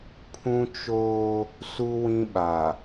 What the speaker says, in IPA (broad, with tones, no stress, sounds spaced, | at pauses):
pʰ ũ˦ t͡ʃ oː˦ | s u˦ w ĩ˦ ɓ a˨